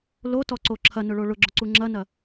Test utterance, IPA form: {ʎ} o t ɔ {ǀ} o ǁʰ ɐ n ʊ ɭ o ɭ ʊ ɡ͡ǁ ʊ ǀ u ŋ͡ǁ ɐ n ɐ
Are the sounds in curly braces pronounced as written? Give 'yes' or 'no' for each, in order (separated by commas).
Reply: no, yes